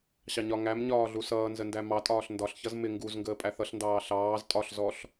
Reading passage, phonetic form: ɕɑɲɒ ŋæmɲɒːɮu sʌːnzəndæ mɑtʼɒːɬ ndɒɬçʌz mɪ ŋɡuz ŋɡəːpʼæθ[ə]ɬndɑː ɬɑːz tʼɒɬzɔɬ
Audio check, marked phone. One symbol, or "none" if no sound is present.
ʌ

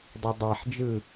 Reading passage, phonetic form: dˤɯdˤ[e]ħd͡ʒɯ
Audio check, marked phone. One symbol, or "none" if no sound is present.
e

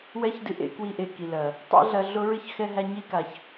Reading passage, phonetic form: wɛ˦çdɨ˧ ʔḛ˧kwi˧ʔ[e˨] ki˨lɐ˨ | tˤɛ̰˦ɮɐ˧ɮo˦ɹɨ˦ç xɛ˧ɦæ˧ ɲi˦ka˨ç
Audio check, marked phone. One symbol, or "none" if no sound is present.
e˨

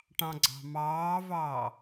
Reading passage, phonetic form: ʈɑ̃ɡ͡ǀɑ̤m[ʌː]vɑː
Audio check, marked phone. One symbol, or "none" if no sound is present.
ɑː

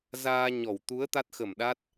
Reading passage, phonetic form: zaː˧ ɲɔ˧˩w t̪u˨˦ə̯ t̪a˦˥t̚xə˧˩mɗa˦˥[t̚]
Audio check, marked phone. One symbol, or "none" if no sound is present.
t̚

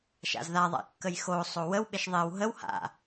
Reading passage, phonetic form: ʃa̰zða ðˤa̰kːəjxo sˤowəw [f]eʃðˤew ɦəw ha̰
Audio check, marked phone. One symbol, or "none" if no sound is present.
ɓ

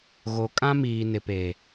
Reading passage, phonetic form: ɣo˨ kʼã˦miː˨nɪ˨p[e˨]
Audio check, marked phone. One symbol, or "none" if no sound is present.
e˨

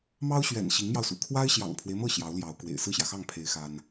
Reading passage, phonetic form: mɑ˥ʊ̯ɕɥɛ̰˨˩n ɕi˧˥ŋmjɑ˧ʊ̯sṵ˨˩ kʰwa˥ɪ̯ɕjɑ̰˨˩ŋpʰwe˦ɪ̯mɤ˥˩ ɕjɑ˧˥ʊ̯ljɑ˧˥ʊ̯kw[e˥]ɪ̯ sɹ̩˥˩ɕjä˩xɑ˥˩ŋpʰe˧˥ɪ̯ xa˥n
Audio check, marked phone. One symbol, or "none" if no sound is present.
ḛ˨˩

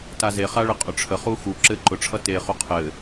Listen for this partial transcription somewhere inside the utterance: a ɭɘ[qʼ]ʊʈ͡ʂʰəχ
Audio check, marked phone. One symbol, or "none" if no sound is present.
qʼ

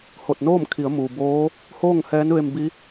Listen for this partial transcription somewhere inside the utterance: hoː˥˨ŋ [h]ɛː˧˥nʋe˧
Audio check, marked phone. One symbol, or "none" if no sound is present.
h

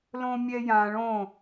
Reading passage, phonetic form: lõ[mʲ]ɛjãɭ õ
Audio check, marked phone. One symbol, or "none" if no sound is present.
mʲ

